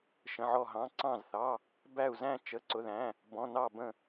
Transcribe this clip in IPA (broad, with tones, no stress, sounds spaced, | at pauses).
ʃ ə̃˩˧˩ ʕ ɔ˧˩ ɦ ɑ̃˩˧˩ ǀ ɑ̃˧˩ z θ ɑ˩˧˩ | b æ˧˩ u̯ z æ̃˧˩ t͡ʃ ə˩˧˩ ǀ ʊ˩˧˩ ð æ̃˩˧˩ | b ɔ̃˩˧˩ n ɑ˧˩ b ə̃˧˩